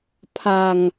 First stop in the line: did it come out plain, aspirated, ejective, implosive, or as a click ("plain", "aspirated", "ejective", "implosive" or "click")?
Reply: aspirated